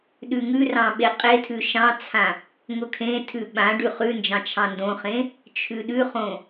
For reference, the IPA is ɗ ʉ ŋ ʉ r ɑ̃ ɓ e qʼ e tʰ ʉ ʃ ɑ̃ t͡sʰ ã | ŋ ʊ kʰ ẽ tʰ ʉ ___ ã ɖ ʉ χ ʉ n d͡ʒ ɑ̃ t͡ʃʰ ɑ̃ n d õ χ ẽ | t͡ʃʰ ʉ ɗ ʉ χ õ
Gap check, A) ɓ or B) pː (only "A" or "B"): A